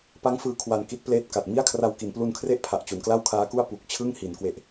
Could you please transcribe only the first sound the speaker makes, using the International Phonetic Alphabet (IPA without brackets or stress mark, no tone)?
p